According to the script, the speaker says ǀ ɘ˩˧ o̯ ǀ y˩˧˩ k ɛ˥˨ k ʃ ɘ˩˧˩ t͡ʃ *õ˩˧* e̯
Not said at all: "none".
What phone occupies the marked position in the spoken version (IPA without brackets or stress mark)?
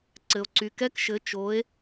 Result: o˩˧